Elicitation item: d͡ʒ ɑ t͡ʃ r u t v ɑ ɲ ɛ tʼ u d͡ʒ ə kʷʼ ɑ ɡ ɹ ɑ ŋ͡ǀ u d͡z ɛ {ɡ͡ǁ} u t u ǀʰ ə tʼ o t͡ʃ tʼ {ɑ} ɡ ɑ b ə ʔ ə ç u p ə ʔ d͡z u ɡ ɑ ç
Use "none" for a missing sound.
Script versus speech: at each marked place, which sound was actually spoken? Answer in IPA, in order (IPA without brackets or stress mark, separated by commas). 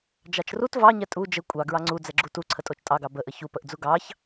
ɡ͡ǁ, ɑ